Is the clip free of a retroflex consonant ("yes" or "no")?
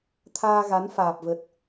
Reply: yes